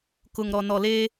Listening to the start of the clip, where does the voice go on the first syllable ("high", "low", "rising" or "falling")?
low